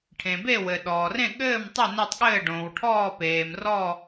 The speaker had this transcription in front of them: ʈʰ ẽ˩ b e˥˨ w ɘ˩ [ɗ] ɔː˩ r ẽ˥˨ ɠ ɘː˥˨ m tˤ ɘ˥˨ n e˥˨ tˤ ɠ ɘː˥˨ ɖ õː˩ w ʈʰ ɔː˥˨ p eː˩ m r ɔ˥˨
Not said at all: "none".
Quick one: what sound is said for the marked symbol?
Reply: ɗ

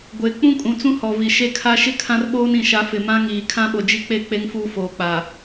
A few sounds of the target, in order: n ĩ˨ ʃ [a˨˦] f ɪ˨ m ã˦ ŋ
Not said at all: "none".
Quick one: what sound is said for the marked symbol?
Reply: a˨˦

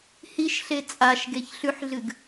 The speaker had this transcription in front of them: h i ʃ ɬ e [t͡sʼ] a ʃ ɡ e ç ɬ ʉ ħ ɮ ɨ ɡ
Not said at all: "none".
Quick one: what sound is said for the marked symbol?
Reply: t͡sʼ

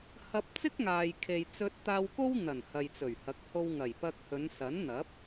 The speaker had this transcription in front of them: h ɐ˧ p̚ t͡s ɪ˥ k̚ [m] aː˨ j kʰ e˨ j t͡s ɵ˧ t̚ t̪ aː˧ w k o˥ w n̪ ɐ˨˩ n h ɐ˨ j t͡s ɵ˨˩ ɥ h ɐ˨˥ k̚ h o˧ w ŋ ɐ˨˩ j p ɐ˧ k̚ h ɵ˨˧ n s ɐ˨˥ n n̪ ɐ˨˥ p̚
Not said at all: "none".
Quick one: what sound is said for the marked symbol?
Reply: ŋ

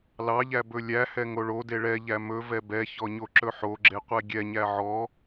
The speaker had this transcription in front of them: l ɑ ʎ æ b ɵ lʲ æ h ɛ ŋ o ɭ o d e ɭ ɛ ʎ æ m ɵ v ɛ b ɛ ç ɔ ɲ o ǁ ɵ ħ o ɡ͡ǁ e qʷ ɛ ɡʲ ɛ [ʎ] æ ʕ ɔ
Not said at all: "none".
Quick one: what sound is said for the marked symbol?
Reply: ɲ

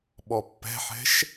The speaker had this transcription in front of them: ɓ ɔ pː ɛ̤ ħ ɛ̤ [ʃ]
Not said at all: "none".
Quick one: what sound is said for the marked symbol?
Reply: ʃ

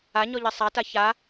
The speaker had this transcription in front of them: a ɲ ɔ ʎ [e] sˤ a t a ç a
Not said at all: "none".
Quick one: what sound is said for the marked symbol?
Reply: e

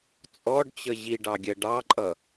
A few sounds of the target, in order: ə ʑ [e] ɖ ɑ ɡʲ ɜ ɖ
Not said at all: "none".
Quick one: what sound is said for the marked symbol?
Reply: i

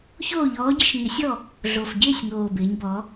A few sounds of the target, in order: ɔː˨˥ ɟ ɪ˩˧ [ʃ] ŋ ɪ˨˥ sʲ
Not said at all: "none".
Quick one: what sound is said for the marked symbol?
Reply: ʃ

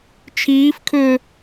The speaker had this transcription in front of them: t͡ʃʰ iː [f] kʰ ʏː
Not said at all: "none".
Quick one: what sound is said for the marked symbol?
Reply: f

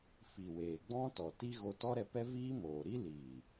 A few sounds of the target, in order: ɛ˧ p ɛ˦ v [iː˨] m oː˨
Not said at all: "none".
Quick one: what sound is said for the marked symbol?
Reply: iː˦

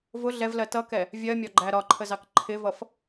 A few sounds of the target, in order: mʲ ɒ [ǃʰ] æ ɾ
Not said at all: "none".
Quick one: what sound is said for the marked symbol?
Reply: ɡ͡ǃ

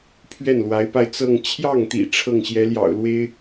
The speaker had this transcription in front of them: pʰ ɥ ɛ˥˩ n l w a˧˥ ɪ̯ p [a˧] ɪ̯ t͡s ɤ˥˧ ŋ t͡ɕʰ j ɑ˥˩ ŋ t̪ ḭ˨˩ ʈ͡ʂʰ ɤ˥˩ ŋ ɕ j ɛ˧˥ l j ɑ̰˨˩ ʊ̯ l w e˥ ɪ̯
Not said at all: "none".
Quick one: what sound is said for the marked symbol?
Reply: a˧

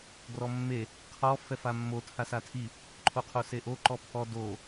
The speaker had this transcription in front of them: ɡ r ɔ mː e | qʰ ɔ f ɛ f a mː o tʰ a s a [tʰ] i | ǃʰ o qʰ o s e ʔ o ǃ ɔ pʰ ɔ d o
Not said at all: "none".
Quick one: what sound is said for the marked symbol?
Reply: tʰ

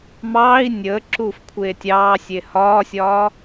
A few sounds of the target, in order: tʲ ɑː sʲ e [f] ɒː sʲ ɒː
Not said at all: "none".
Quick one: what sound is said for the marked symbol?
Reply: h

